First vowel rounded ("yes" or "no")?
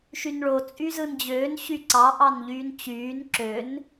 yes